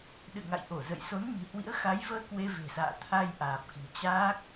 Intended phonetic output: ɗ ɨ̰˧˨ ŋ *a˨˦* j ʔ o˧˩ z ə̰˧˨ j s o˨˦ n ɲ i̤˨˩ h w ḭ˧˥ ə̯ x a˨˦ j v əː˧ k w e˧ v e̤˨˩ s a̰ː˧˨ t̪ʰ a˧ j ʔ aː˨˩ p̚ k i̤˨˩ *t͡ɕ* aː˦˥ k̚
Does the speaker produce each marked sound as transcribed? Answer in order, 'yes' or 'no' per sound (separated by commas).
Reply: no, yes